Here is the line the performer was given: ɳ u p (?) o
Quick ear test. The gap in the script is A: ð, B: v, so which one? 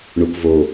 B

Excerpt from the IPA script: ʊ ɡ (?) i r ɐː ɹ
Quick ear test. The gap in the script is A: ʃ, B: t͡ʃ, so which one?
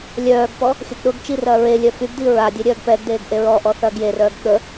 B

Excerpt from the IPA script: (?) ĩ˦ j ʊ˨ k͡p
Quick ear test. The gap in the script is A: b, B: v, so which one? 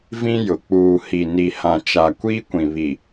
B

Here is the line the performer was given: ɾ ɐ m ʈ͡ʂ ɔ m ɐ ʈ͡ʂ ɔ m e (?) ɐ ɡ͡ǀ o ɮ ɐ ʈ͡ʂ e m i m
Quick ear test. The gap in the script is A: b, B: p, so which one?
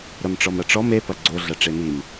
B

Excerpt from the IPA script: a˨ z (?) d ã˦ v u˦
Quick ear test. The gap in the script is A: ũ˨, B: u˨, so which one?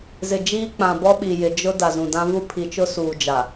A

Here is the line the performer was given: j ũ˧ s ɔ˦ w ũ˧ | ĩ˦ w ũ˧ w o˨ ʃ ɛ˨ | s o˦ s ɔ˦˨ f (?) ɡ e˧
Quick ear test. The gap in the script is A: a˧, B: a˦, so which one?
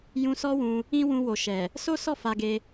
A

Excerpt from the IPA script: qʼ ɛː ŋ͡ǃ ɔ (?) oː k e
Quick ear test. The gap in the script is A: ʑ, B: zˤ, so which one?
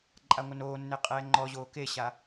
A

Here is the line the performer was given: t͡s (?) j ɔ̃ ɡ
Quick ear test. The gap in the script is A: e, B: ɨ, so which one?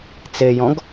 A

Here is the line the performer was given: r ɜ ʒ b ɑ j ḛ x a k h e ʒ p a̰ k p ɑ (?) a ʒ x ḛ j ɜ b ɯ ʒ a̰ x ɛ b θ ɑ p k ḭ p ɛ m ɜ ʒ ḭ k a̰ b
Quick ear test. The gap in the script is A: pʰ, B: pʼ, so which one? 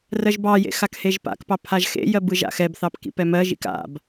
A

